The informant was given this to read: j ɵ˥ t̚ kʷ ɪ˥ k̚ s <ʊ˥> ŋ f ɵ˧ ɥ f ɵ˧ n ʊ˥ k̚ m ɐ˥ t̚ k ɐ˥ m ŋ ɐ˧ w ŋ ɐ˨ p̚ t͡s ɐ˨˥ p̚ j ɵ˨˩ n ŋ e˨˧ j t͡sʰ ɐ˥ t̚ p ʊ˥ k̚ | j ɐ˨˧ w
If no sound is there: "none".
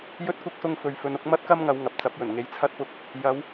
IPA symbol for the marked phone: ʊ˥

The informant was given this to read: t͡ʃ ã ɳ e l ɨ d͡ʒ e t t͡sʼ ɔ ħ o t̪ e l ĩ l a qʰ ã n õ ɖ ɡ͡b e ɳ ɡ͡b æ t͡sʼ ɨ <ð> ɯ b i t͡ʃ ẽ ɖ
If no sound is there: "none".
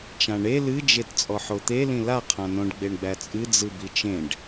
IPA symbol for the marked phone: d͡z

